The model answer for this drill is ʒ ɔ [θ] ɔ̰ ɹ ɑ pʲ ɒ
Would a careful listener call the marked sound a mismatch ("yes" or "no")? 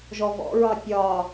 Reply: yes